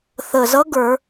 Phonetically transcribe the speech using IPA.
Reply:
θ ə˨˩ z ʌ˧˥ ɡ ə˞˧˩˧

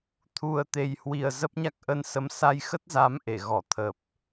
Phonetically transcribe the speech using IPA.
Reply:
t̪ʰ u˨˩ ə̯ t̪ e˨˩ j h w i˨˩ ə̯ z ə˦˥ p̚ ɲ a˦˥ k̚ ʔ ə˧ n s ə˨˦ m s a˧ j x ə˦˥ t̚ z a˨˦ m ʔ e˧˩ ɣ ɔ˧˩ t̪ʰ ə˨˩ p̚

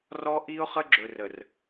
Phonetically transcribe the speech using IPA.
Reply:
r ɔ˦ ʔ i˦ ʊ̯ χ ə˦ ɡ͡ǁ ɵ˨ r ə˨ r

